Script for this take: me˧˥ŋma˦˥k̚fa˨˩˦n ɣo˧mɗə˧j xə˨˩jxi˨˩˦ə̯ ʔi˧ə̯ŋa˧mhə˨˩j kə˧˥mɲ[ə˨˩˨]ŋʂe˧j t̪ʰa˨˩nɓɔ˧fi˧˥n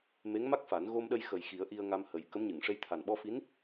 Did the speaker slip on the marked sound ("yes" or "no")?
yes